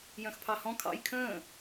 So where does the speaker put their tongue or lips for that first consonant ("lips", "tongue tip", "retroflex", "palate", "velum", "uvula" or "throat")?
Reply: palate